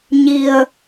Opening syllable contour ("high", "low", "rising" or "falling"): low